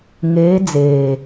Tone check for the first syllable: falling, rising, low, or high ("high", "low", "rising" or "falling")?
rising